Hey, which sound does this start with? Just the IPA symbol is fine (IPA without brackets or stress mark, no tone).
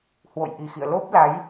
h